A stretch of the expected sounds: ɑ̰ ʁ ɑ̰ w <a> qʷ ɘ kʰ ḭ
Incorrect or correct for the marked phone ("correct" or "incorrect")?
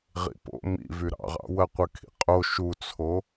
incorrect